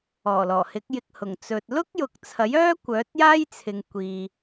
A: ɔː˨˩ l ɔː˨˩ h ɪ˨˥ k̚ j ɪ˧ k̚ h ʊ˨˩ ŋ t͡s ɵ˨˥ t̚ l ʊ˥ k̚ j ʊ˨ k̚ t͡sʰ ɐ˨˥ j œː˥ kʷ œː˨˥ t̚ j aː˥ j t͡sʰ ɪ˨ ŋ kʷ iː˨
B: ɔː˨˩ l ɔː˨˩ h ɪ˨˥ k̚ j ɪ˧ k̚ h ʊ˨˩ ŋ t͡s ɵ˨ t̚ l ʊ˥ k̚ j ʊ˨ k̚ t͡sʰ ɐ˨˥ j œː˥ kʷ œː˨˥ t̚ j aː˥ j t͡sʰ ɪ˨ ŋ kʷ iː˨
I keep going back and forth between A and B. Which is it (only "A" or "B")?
B